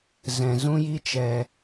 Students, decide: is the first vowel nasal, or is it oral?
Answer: nasal